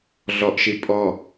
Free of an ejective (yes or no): no